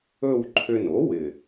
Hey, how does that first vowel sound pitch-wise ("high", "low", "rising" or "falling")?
falling